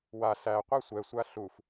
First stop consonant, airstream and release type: plain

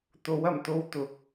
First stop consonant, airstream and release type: plain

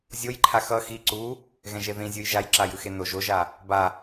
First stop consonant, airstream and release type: click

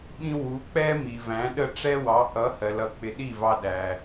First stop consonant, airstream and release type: implosive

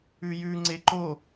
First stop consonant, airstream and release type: click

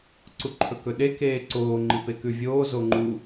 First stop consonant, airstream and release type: click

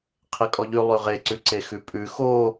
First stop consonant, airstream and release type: aspirated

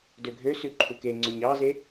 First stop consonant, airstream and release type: plain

